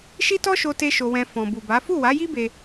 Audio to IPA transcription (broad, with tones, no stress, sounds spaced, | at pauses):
ʃ i˦ t ɔ˦ ʃ o˦ t e˦ ʃ o˧ w ɛ̃˧ f ɔ̃˨ b u˨ b a˨˦ f u˦˨ w a˨˦ j i˦ b e˧